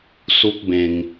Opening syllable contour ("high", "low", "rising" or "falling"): high